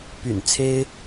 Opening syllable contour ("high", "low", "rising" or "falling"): low